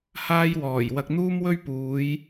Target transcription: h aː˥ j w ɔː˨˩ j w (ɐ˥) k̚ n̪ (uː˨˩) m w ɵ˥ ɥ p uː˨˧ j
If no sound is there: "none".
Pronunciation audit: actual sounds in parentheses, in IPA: ɐ˧, uː˥

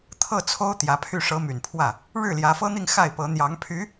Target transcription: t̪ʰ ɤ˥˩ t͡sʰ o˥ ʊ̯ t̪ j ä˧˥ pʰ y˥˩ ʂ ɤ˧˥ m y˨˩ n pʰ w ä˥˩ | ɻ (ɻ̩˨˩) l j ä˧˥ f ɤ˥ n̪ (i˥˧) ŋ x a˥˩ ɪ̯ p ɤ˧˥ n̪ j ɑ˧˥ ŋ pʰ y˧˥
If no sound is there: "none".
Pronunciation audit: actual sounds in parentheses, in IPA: ɻ̩˥˩, i˥˧

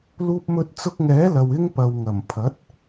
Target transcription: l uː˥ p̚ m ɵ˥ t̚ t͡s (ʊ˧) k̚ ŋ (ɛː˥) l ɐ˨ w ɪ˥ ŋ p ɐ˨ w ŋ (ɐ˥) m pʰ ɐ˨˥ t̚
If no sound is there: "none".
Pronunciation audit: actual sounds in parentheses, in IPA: ʊ˧, ɛː˨˥, ɐ˨˩

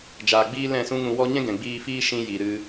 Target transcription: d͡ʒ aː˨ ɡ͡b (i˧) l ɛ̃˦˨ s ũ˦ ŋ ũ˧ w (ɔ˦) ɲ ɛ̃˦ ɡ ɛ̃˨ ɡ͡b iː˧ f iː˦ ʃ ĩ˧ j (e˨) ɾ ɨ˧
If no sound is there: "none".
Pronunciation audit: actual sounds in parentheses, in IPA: iː˧, ɔ˦, i˨

